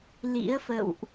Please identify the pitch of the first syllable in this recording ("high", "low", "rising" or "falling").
rising